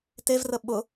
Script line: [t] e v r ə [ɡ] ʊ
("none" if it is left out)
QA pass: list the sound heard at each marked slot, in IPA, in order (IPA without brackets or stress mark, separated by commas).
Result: t, ɓ